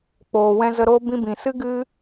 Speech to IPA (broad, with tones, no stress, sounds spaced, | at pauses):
k͡p oː˨ w ɛ̃˧ z ə˧ ɾ oː˦ b ĩ˧ b ĩ˨ s ɨ˦ ɡ ɨ˦